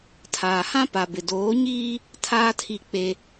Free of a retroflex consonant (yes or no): yes